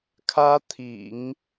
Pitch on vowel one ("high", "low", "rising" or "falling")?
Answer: high